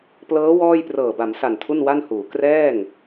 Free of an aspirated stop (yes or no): no